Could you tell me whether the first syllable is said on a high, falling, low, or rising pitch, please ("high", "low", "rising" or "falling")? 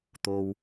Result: low